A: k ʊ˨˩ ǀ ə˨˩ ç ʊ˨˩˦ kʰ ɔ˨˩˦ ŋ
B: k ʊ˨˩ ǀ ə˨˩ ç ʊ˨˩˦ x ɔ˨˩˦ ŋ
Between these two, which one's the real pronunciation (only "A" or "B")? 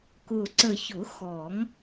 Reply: B